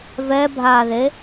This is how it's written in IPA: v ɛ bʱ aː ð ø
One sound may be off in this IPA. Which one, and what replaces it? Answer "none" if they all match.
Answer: ø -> e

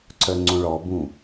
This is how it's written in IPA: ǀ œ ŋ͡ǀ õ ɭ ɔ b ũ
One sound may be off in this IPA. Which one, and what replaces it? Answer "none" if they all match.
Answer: none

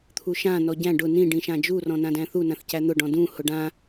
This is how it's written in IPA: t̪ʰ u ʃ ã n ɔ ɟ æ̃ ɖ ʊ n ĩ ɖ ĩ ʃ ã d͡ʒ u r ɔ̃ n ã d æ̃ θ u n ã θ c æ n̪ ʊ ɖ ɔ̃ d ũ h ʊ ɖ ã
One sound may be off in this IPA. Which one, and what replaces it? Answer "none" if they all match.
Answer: none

